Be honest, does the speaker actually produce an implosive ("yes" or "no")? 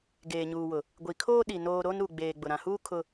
yes